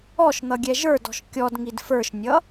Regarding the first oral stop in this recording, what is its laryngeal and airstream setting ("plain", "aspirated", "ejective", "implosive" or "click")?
plain